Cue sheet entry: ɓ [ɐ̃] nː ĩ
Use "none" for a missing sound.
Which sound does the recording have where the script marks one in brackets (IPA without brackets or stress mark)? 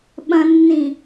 ɐ̃